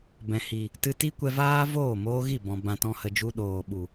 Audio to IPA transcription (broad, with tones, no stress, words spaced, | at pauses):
bɛ̃˨hi˨ | tɨ˧ti˦kʷɛ˧vaː˦ voː˦˨moː˧ɣi˦˨ bɔ̃˨ bã˧tɔ̃˦hə˧ d͡ʒu˧ɗoː˨ɓu˨